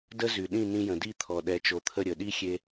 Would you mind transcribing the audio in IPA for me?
d ə˥ z y˩ ɗ ĩ˥˩ n ĩ˧ j ə̃˩ d i˥˩ t̪ʰ ɔ˩ ɗ ɛ˩˥ t͡ʃ o˩˥ t̪ʰ ə˥˩ ɾʲ ə˩ ɗ i˥ xʲ e˧

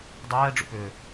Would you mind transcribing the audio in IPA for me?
dˤ ɛː ɖ͡ʐ ṵ p ʏː

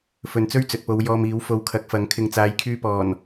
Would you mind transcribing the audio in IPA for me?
f ɵ˨ n t͡s ɵ˥ ɥ t͡s ɵ˨ t̚ p o˨˧ w j ɔː˧ m iː˨˥ w f o˧ w kʰ ɐ˨˥ k̚ f ɐ˨˥ ŋ kʰ ɪ˨ ŋ t͡s aː˨˧ j kʰ yː˧ p ɔː˨˩ n

